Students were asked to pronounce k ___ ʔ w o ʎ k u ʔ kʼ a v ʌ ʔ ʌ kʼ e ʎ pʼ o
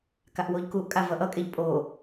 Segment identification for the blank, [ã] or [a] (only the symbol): a